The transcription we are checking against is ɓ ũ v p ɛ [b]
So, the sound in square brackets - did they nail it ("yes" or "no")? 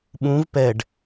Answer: no